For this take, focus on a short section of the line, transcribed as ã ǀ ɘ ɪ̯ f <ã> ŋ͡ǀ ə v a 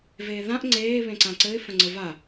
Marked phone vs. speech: incorrect: ə̃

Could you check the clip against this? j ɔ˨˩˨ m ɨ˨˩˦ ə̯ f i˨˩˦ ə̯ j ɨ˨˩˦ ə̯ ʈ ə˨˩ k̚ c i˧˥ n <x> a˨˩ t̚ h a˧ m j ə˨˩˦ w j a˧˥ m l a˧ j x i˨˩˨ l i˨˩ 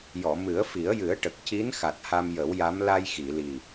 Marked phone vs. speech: correct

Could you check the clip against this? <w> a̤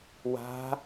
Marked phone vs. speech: correct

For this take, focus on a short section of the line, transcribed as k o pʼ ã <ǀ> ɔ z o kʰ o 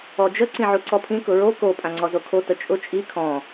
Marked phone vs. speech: incorrect: ŋ͡ǀ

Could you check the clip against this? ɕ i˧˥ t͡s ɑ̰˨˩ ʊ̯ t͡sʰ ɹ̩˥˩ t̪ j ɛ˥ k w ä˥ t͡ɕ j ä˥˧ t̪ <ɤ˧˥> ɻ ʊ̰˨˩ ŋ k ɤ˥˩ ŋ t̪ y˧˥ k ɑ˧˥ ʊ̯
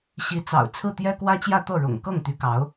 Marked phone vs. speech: incorrect: ɤ˥˩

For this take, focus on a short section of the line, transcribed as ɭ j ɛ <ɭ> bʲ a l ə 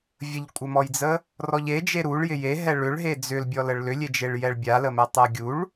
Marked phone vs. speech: correct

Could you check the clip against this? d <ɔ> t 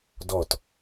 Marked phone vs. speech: correct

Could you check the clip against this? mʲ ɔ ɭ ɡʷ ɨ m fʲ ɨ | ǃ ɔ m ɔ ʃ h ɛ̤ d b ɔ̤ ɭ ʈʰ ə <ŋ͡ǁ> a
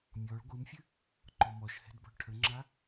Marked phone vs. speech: correct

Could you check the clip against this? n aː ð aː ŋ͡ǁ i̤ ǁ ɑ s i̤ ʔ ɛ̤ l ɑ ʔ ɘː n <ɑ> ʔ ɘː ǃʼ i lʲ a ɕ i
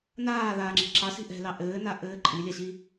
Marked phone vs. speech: incorrect: a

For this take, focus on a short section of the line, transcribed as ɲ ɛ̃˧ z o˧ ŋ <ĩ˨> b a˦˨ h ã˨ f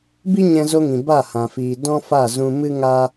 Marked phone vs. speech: correct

